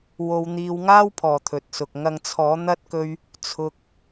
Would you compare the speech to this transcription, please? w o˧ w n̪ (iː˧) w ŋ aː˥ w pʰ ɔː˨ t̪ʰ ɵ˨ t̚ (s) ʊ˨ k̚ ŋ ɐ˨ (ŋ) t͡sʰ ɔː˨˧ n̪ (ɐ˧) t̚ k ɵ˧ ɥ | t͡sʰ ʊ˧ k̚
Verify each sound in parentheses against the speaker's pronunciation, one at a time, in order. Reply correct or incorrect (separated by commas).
correct, correct, correct, correct